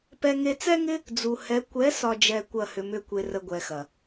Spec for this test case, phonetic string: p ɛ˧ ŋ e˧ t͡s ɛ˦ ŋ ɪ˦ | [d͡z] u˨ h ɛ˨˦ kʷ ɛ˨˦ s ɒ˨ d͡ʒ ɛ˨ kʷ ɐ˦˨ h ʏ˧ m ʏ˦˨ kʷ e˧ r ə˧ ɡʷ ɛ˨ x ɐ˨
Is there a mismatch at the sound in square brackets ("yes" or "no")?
no